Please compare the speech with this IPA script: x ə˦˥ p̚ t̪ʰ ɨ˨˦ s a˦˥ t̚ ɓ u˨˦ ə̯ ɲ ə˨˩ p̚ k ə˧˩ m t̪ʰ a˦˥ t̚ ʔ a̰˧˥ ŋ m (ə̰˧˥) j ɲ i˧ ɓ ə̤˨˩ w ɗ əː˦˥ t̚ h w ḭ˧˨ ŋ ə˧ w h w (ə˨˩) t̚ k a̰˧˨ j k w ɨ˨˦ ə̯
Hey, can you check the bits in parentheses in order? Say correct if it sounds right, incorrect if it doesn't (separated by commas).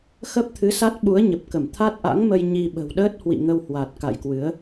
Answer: incorrect, incorrect